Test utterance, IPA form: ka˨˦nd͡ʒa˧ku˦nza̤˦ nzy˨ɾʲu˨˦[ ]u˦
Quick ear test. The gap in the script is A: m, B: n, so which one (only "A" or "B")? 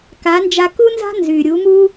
A